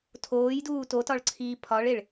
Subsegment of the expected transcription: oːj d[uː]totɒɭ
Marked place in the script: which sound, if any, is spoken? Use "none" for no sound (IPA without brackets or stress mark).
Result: uː